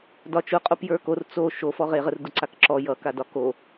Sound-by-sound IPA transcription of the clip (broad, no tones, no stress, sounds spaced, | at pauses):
d ɒ t͡ʃ ʊ qʼ o p j ə˞ k o r t͡s o ʃ o f ɔ ʁ e ʁ ə r d ʊ ǀ a k ǁ ɔ j ʌ k a d ɒ k o